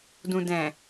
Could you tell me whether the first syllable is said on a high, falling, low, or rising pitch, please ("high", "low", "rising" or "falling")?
low